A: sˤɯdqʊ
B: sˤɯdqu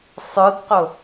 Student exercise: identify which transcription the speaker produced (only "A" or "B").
A